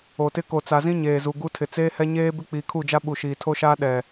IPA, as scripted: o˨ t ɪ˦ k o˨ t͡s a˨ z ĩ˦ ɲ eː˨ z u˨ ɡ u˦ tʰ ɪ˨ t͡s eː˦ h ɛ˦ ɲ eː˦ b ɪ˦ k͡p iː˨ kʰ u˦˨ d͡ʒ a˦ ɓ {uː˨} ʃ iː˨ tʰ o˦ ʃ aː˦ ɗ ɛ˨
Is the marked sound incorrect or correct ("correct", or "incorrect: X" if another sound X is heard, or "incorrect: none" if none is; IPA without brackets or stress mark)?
incorrect: u˨